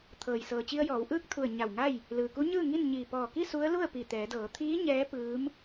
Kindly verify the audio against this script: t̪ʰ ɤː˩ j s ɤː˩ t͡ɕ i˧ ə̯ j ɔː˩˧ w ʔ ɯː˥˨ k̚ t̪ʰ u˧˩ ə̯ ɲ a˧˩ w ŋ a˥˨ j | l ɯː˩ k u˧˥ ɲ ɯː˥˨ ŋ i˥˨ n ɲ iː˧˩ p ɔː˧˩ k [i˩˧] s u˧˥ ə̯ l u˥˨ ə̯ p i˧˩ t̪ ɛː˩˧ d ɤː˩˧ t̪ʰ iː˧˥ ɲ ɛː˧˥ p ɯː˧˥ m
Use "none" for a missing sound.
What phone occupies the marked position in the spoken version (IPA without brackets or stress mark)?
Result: i˥˨